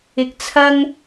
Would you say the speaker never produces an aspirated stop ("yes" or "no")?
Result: no